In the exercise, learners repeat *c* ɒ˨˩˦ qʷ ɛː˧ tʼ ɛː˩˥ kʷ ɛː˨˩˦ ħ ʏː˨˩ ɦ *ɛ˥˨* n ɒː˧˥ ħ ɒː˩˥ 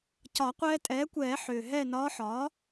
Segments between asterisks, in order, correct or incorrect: correct, correct

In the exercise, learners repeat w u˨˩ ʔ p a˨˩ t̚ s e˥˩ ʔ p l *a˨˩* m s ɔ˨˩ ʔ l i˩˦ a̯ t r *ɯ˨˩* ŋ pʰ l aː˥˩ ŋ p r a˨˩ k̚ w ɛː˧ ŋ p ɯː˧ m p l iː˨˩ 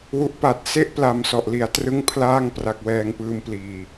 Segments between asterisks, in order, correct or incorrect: correct, incorrect: ɯ˥˩

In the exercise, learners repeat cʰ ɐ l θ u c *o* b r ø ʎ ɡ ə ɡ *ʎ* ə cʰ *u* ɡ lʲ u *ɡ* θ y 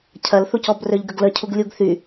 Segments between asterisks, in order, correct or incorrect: incorrect: ɔ, incorrect: l, correct, correct

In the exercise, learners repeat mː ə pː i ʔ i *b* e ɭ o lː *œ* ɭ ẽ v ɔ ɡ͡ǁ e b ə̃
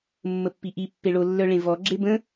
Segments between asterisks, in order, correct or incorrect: incorrect: pː, correct

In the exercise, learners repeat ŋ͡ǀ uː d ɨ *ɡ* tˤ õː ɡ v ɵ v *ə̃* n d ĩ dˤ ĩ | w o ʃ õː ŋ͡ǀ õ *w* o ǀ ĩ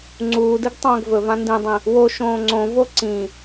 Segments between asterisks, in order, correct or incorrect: correct, incorrect: ã, incorrect: v

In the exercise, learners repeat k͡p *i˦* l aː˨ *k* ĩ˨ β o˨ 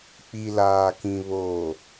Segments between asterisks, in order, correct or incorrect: incorrect: i˨, correct

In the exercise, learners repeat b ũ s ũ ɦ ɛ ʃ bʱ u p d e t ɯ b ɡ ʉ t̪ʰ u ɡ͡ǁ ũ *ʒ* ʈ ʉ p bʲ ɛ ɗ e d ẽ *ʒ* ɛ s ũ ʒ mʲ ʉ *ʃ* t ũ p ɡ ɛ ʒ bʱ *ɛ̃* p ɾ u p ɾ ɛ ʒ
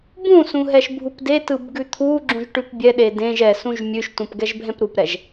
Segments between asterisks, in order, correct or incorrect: correct, correct, correct, correct

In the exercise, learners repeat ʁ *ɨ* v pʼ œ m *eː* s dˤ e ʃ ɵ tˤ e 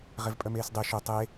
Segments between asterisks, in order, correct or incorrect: incorrect: e, correct

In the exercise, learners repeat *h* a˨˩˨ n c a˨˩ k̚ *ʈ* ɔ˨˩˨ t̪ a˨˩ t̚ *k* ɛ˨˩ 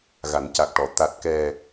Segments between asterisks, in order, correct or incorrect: incorrect: ɣ, correct, correct

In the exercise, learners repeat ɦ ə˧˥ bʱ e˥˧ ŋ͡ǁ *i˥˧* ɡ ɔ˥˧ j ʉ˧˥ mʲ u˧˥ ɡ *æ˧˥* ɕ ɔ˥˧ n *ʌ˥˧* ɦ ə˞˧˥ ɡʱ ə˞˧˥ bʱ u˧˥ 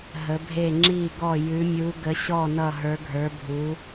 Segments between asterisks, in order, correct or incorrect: correct, incorrect: ə˧˥, correct

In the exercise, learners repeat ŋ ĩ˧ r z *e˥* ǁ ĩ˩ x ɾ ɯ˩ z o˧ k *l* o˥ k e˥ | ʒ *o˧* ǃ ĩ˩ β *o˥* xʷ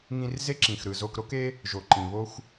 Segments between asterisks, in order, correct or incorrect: correct, incorrect: ɾ, incorrect: o˩, correct

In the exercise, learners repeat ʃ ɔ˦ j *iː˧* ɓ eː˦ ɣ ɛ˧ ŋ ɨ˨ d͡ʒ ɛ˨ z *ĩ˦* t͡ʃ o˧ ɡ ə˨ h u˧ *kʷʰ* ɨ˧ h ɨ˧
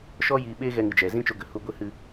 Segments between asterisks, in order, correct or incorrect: correct, correct, incorrect: ɡʷ

